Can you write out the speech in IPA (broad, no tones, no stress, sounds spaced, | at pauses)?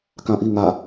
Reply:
k ã ʔ i ŋ a